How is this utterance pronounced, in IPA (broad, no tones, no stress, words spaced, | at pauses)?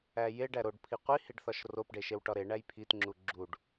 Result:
æjeɖæ ɾoɖpʰi qʷihiɖ θɒʃropɖe ʃewʈɒɾeɳæj pʰitŋ͡ǁu ɡ͡ǁuɖ